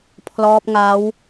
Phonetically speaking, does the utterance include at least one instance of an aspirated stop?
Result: yes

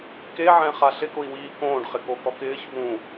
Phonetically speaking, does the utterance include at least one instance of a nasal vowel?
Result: yes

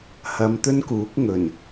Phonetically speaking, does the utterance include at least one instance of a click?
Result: no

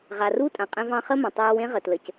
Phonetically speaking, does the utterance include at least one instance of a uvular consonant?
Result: yes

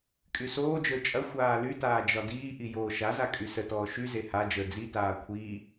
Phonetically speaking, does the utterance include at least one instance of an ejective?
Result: yes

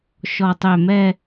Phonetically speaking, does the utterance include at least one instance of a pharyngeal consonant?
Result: no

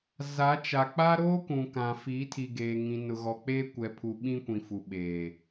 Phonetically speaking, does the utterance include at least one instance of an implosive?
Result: yes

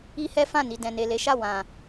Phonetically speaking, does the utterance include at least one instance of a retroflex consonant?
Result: no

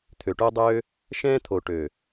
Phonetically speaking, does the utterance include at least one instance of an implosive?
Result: no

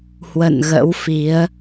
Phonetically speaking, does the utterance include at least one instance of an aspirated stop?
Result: no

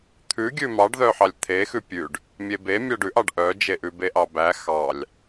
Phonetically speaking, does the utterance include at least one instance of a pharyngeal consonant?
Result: yes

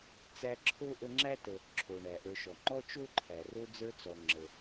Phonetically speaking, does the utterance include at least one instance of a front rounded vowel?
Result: no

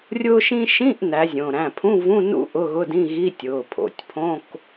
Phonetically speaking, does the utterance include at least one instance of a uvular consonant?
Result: no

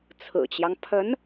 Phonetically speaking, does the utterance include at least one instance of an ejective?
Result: no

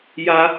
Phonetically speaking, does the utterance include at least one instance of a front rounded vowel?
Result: no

